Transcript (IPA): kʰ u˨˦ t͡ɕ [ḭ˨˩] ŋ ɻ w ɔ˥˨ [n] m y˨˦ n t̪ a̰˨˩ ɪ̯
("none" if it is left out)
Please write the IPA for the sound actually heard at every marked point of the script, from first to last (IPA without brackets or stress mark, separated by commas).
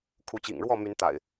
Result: ḭ˨˩, none